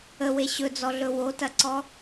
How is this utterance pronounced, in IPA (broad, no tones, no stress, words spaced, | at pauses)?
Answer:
əwe ɕɵd͡zɔɮɵ wotɐǀɔ